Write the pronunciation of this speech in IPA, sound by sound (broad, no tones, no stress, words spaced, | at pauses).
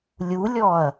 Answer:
lʲulʲɔɐ̯